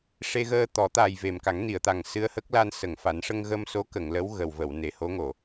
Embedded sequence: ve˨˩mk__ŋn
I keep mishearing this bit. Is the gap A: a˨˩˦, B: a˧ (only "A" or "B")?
A